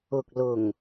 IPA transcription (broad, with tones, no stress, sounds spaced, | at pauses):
ʊ˨ k̚ l ʊ˨˩ ŋ